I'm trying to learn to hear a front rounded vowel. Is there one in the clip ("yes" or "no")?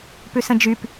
yes